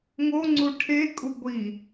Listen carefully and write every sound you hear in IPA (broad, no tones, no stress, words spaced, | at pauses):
ŋo ŋ͡ǀuʈʰekʼu ɡʷi